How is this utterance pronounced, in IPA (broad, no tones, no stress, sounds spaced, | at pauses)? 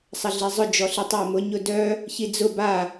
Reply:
sˤ ɐ ɮ i zˤ ʊ d͡ʒ ɔ ɬ i tˤ ɑ ɪ̯ m ʊ ɲ ʊ d œ | ç i d͡z ʊ b a